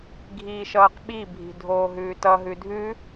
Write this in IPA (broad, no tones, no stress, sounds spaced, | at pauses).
ɡʱ iː ʃ ʌː q ɓ i bʱ i̤ dʱ oː ɦ ʉː t ʌ ɦ ʉ dʱ ʉ